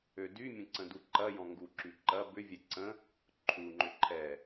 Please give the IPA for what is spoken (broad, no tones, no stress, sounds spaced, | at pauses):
ø d y mʲ ə̃ ǀ ə̃ d u ǃ ɐ j ɔ̃ ŋ ɡ u ǁ y ǃ ɐ b ʏ vʲ ɛ ǀ ə̃ | ǃʰ u ŋ͡ǃ ʏ ǃʰ ɛ